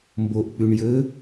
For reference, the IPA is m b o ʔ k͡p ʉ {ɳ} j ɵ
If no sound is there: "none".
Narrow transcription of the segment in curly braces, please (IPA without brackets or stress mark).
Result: ɳ